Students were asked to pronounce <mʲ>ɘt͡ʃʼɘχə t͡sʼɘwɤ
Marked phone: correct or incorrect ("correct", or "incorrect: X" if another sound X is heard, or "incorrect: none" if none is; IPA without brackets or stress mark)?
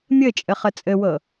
correct